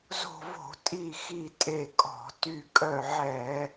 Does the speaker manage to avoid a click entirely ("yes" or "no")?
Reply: yes